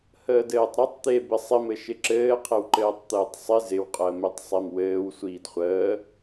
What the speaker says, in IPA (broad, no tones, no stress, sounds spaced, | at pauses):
h əː d ɘː tˤ ɾ ɘ tˤ t̪ e b ɪ sˤ ɪ m ɘ ʃ ɪ ǁ ɘː qʰ ɪ w ǃ ɘː tˤ t̪ ɘː tˤ sˤ ɪ z ɪ w qʼ əː m e tˤ sˤ e m w ɘː w sʷ iː d χʷ əː